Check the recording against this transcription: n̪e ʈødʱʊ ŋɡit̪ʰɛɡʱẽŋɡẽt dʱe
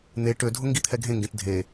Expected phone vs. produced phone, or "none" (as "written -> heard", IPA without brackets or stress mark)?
none